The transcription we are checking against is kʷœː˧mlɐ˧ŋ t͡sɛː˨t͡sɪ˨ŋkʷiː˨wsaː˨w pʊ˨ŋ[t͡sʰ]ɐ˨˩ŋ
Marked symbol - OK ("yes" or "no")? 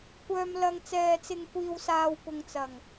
no